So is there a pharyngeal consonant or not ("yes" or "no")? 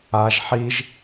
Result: yes